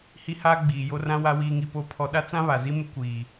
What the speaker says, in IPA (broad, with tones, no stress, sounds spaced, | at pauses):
h i˦ h aː˦ ɡ͡b iː˨ j o˦ r ã˦ w a˦ w iː˦ ŋ i˦ p o˦ pʰ ɔ˦ ɗ a˦ t͡s ã˦ β a˨ z i˦ m ɪ˦ kʷ iː˨